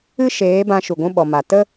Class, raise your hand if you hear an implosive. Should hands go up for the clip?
yes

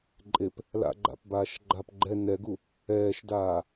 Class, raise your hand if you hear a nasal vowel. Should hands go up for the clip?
no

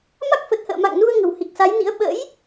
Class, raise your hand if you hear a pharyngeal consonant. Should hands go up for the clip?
no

